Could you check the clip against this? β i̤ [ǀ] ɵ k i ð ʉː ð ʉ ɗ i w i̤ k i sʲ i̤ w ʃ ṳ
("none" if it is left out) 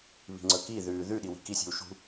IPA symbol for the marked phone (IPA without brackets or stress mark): ŋ͡ǀ